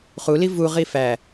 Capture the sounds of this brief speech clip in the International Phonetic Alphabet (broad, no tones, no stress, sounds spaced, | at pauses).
χ u l i v u ʁ i f æ